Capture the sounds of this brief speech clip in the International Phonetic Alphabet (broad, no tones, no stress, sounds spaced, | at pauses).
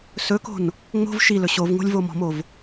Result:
s ɵ k o̤ n | ŋ͡m o̤ v ʃ i l ɵ ɕ o v ŋ o̤ lʲ v o m ɔ̤ m o v